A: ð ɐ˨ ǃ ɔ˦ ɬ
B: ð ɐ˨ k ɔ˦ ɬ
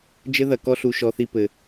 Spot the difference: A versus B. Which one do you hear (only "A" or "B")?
B